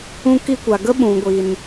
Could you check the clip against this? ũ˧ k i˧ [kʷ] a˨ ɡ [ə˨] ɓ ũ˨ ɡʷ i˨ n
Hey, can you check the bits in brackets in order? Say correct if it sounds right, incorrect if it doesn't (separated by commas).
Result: correct, incorrect